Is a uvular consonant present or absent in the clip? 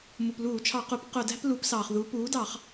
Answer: present